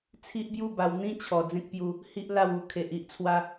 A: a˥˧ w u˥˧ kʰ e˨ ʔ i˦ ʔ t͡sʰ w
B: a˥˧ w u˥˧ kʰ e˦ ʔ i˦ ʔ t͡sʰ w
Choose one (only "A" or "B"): A